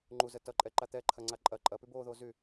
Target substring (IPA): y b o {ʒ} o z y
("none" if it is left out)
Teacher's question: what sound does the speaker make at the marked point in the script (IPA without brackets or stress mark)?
ð